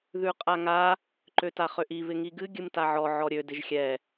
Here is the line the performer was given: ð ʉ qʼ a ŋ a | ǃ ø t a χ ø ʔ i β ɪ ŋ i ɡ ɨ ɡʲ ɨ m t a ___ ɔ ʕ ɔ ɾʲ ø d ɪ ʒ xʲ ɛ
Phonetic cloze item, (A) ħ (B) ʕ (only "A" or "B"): B